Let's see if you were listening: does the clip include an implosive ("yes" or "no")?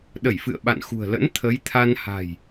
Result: yes